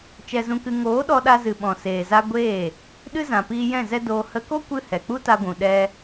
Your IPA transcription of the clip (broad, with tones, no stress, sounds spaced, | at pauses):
t͡ʃ ɛ˧ z ũ˧ k ɨ˧ ŋ oː˨˦ ɗ ɔ˧ ɗ a˧ z ɨ˨ ɓ ɔ̃˨ s eː˨ z a˧ ɡʷ eː˦˨ | ɗ ɨ˦ z ã˨ p iː˧ j ɛ̃˦˨ z ɛ˦ d oː˧ h ə˧ k o˦ kʷ ɨ˧ h ɛ˨ k͡p u˦ t a˧ ɡʷ ũ˨ ɗ ɛ˧